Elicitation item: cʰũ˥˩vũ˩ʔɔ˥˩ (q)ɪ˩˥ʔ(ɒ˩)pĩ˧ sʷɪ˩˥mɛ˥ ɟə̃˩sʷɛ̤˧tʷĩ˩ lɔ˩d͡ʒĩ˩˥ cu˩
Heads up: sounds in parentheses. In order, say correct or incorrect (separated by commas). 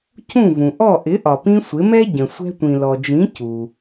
incorrect, correct